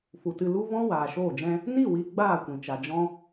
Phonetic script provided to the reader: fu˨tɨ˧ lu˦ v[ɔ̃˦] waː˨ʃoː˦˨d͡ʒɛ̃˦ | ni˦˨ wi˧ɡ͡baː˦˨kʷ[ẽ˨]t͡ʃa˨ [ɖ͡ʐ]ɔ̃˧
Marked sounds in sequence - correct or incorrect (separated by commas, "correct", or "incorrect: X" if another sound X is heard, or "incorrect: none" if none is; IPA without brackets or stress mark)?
correct, incorrect: ĩ˨, incorrect: d͡ʒ